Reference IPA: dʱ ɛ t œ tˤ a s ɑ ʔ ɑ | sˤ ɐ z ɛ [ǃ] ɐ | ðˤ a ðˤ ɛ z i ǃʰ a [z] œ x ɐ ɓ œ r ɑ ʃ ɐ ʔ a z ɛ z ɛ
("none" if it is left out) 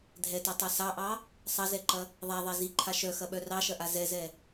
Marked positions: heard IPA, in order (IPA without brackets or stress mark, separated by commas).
ǃ, ʃ